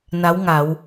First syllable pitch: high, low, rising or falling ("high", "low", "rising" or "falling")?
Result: rising